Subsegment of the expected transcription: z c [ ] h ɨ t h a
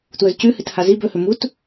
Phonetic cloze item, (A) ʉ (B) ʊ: A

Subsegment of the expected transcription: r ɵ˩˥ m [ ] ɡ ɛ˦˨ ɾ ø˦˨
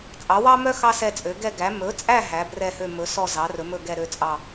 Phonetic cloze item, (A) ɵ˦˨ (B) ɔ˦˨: A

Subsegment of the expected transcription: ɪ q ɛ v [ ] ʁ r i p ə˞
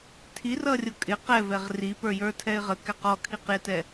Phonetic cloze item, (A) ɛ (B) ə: A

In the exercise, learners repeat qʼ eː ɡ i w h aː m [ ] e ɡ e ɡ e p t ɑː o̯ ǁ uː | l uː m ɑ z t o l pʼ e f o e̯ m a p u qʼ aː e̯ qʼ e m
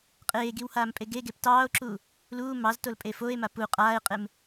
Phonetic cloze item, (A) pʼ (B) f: A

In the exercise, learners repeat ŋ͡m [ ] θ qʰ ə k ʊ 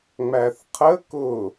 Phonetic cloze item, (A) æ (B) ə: A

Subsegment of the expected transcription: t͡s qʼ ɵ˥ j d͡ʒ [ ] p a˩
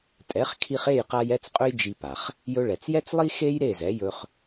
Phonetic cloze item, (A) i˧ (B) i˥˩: A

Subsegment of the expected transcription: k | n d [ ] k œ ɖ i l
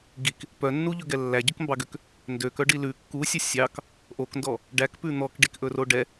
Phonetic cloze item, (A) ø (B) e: A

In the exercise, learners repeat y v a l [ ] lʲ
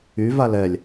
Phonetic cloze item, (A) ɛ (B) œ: A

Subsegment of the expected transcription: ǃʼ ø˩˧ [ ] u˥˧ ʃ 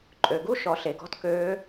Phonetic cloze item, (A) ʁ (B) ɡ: B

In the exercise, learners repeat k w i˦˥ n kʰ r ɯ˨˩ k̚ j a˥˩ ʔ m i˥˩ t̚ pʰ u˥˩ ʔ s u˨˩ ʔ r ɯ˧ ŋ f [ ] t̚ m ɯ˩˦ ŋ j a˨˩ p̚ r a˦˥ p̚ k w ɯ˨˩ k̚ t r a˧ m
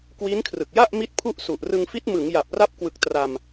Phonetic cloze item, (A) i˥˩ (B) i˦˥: B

